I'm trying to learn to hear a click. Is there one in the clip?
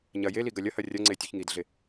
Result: yes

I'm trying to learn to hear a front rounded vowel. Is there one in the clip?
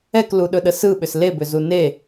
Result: yes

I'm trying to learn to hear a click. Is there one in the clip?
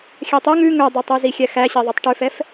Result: no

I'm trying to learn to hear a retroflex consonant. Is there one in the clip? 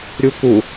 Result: no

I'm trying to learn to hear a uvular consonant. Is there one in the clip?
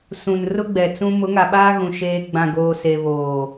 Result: no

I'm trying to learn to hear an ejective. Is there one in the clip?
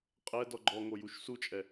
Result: yes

